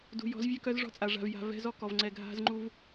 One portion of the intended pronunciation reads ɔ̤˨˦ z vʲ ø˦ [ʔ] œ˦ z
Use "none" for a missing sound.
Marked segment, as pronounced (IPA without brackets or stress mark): k